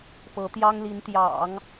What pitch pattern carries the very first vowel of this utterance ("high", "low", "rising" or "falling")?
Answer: rising